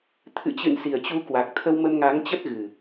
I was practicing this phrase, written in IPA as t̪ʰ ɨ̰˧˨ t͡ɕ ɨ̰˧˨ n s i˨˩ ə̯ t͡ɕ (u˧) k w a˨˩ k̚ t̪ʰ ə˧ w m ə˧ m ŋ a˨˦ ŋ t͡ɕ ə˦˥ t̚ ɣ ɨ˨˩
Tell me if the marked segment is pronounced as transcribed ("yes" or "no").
yes